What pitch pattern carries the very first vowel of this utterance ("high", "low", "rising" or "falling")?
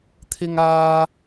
high